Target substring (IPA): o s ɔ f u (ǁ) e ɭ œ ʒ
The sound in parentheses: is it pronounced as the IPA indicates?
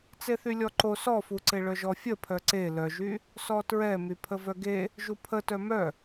no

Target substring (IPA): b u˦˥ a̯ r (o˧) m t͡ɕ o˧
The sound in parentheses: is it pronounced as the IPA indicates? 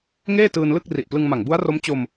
no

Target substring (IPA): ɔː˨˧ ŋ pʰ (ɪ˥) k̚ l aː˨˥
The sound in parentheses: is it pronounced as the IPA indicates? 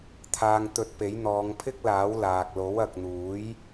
yes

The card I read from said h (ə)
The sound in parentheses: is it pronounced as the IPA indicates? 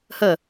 yes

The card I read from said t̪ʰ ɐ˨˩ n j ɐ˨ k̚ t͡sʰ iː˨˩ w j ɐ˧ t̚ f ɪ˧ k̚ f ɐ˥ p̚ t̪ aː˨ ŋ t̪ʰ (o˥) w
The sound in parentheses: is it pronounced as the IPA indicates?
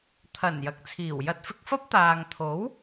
no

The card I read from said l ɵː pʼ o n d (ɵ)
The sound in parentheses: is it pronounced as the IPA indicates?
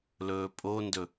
yes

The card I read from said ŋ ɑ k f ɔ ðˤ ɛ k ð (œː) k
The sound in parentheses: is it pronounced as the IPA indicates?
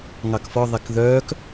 yes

